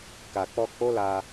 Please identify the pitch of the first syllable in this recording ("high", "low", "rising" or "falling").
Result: low